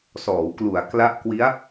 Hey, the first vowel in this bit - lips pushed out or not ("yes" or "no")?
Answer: yes